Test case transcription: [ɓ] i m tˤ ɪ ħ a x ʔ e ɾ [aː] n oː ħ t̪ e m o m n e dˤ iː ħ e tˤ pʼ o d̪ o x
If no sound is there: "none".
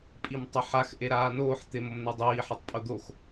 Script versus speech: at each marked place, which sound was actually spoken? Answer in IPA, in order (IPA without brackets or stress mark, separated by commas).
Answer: pʼ, aː